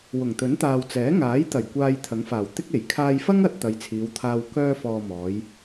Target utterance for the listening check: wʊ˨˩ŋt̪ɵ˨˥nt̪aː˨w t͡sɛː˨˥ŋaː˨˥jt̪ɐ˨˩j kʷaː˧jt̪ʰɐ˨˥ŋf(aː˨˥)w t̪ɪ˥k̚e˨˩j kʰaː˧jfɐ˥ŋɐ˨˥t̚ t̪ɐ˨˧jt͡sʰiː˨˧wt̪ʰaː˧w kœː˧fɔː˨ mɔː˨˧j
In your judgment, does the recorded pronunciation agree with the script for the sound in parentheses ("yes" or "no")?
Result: no